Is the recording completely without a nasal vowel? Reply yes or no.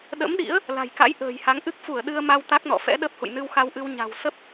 yes